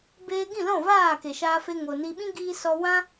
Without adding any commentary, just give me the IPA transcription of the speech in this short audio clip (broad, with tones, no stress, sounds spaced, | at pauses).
b eː˧ ɡ ĩ˦˨ l ɔ̃˦˨ v aː˦˨ k e˨ ʃ aː˧ f e˧ ŋ o˨ n i˧ ɓ ĩ˦ ɡ iː˧ s ɔ˧ w ã˦